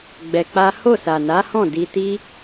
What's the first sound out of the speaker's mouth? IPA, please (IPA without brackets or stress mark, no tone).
ɡ͡b